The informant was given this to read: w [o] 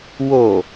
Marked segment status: correct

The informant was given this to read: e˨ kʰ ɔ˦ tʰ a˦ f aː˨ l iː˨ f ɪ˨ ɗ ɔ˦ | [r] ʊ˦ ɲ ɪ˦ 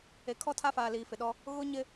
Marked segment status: incorrect: ɣ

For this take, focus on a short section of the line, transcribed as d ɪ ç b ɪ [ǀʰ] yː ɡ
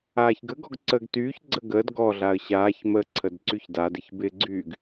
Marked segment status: incorrect: ɡ͡ǀ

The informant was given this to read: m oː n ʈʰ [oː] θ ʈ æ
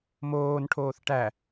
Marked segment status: correct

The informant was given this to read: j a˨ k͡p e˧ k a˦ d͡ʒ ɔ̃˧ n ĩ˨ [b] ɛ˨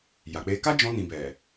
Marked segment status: correct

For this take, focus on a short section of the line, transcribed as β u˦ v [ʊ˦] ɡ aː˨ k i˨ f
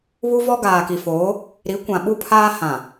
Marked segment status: incorrect: ɔ˦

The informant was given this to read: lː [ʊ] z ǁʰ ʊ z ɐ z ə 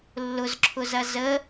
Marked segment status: correct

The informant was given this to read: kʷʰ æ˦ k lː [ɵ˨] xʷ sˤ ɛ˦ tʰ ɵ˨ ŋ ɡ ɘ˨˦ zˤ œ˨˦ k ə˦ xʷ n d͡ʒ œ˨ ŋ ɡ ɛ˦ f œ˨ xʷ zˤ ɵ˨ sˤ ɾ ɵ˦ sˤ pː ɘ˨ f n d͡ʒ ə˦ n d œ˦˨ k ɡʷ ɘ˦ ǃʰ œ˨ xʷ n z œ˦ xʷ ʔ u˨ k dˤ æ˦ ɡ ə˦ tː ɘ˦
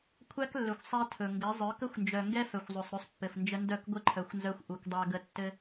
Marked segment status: correct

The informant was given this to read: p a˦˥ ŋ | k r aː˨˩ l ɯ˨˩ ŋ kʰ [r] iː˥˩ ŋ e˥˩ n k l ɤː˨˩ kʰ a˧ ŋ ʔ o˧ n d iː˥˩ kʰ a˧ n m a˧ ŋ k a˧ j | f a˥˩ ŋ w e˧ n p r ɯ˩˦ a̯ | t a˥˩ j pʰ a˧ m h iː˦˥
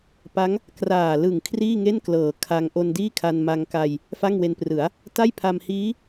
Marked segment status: correct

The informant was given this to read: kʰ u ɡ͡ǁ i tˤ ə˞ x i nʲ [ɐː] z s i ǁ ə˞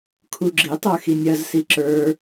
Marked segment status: incorrect: ɐ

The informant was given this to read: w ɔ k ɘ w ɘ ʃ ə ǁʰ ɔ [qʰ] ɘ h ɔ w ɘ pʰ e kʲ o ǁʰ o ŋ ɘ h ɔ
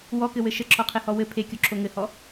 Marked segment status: correct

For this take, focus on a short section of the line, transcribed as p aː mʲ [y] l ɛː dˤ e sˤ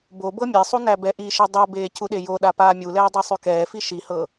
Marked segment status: incorrect: u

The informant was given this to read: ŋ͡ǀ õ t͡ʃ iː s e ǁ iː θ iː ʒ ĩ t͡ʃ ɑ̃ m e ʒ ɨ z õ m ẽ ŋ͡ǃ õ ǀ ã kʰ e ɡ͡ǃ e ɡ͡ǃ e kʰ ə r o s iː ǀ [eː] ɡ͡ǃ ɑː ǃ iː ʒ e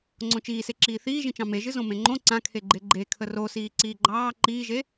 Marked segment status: incorrect: iː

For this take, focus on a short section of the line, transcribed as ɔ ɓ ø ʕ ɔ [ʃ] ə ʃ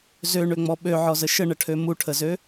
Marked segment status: incorrect: z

